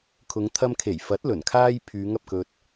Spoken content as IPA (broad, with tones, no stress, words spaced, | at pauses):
kʰʊ˨˧ŋt̪ʰɐ˧mkʰe˨˩j fɐ˨˥t̚ lɵ˨˩nkʰaː˥j pʰyː˨˧ŋɐ˨p̚kɵ˧t̚